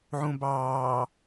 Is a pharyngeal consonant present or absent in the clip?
present